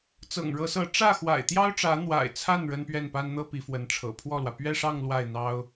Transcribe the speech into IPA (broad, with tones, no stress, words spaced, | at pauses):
t͡sɤ̰˨˩ŋɻɤ˧˥sɤ˧˥ ʈ͡ʂä˥˩xwa̰˨˩ɪ̯ t̪jɑ˥ʊ̯ʈ͡ʂä˧˥ n̪wa̰˨˩ɪ̯t͡sʰa˥˩n ɻə˥npɥɛ˥˩npa˥nn̪ɤ˥ pi˧˥fwə˧˥nʈ͡ʂʰɤ̰˨˩ pʰwɔ˥˩lwä˩ pɥɛ˥˧ʂɑ˥˧ŋ lwa˥˩ɪ̯n̪ɑ˥ʊ̯